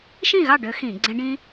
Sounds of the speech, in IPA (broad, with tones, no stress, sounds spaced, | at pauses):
ʃ ĩ˥˨ ɣ ɑ˥˨ ɖ ø˦˥ x ĩ˧˩˧ ɡ͡ǀ ẽ˦˥ ɖ ĩ˦˥